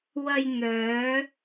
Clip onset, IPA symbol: w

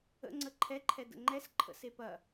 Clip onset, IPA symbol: ə̰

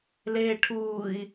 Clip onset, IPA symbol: l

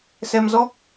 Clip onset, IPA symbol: s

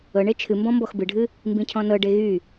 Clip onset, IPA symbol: ɤ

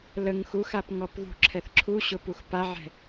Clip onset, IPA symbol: l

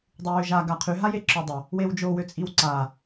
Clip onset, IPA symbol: dˤ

